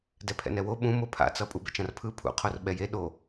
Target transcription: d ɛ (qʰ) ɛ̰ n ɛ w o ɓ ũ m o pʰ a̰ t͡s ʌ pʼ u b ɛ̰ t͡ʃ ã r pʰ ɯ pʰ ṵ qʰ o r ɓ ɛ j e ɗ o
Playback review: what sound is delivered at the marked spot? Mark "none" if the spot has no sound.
pʰ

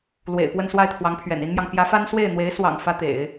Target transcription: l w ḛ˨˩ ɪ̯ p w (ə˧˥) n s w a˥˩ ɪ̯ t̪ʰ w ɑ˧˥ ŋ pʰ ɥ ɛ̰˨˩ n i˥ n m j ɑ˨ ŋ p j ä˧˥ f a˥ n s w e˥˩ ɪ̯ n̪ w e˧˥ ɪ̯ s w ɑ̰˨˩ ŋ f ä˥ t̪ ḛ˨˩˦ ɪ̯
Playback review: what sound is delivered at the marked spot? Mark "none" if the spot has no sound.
ə˥˧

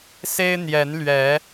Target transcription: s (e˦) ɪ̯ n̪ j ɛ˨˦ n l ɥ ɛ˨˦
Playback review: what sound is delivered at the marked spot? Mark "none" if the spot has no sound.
e˦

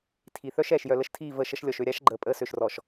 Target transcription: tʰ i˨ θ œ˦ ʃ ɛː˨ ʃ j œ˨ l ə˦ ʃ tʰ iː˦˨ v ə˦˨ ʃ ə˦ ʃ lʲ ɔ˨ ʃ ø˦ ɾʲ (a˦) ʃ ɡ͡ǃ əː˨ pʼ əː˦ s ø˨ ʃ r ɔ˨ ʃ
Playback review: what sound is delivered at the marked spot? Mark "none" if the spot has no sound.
a˦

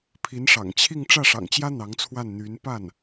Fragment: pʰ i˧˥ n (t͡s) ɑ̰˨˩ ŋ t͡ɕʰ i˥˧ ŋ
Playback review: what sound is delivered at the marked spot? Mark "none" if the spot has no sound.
ʂ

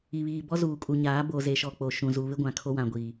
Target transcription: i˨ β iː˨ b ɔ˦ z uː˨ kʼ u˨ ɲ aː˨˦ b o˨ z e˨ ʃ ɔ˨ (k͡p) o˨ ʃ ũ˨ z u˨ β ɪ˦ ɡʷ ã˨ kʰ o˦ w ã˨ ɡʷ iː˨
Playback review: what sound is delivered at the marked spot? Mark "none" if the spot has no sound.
k͡p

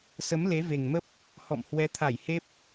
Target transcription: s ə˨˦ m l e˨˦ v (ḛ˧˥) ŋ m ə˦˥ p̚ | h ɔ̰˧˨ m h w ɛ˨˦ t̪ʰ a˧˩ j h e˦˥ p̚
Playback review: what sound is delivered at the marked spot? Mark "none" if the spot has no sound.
e˨˩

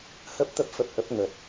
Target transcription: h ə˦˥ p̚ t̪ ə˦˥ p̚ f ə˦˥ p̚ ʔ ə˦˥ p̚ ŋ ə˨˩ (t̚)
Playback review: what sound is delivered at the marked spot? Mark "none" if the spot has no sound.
t̚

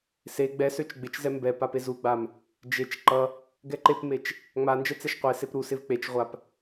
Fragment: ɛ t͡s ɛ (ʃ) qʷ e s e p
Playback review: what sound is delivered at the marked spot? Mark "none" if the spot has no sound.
ʃ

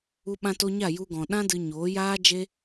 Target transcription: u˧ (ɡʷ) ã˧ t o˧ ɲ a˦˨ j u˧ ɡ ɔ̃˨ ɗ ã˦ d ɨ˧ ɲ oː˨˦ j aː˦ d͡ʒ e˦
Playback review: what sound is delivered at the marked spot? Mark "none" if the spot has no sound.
ɓ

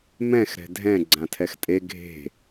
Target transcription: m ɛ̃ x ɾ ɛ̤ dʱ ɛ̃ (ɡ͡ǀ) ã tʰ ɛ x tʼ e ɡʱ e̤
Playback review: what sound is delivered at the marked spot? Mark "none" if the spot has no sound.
ɡ͡ǀ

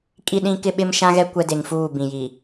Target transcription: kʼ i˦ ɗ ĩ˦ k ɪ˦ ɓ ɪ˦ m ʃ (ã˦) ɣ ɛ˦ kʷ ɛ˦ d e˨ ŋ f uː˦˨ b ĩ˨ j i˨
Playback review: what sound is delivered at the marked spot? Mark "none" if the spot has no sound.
ã˦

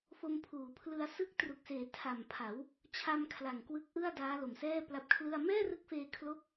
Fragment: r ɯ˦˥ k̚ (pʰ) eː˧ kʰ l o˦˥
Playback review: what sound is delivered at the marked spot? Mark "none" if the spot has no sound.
f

